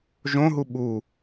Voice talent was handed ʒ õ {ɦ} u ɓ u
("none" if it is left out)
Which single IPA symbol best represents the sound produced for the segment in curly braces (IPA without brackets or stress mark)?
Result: ɦ